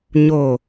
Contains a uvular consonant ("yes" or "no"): no